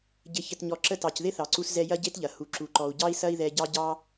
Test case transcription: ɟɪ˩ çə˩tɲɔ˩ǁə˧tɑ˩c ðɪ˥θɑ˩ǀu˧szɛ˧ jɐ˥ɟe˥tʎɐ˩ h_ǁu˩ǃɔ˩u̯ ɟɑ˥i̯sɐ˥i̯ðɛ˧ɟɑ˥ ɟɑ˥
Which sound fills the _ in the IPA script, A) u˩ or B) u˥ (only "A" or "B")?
A